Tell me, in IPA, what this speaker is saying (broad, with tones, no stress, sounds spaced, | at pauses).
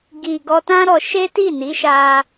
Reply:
ɡ i˨ ɡ ɔ˧ t ã˦ ɾ ɔ˧ ʃ e˦ t i˦˨ n i˨˦ ʃ a˧